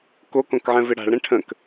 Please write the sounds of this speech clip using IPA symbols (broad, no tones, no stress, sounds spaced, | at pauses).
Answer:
k o k õ k ʕ ɛ̃ v ɪ ɽ a̤ ɭ ɾ ɛ̃ ʈʰ ə̃ k